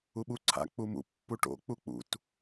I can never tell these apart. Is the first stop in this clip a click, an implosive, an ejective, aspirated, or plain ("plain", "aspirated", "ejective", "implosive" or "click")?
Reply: implosive